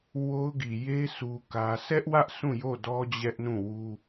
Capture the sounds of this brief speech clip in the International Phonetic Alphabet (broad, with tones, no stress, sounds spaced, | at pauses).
w o˦ ʊ̯ ɡ i˨ j e˦ s u˦ k ä˦ s ɛ˦ ʔ w ä˦ ʔ s ũ˦˨ j o˦˨ d ɔ˦ d͡ʑ ɛ˦ ʔ n ũ˦˨ w u˦